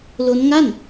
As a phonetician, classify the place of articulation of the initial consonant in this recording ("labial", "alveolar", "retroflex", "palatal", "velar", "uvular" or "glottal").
alveolar